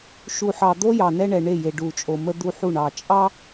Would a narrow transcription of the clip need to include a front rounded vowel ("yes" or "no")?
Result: no